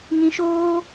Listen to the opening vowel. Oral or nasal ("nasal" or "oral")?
nasal